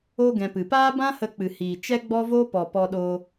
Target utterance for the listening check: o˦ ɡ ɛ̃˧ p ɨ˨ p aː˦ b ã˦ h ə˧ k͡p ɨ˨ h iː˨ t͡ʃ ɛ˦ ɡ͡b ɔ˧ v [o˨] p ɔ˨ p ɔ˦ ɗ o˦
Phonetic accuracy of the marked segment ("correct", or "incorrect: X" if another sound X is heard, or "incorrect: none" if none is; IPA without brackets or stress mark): incorrect: o˧